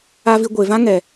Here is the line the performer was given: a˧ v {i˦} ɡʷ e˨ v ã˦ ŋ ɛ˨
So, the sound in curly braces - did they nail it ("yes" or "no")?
no